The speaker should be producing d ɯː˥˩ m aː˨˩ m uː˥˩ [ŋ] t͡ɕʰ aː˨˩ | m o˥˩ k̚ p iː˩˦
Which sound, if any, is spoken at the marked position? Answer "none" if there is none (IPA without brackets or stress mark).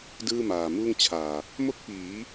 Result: ŋ